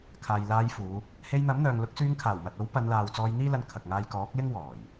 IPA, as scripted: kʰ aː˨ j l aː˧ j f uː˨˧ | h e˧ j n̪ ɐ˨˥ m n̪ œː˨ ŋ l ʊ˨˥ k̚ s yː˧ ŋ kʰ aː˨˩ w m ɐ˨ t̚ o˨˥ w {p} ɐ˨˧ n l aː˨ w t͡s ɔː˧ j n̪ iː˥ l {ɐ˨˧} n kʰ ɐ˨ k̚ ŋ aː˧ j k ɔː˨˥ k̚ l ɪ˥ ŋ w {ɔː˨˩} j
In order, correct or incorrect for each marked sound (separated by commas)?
correct, incorrect, correct